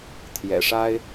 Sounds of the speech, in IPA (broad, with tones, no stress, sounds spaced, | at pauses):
t̪ʰ j ɛ̰˨˩ ʂ a˥ ɪ̯